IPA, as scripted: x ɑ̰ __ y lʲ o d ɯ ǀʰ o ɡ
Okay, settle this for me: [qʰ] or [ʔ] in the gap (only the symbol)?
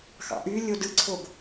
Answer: ʔ